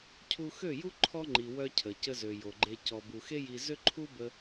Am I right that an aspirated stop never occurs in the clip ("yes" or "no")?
no